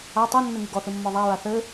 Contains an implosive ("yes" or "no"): no